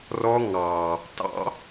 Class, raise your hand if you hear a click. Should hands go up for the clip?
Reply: no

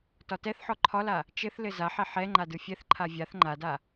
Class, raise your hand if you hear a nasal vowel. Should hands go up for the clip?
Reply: no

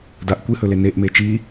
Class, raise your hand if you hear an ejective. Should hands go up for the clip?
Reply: no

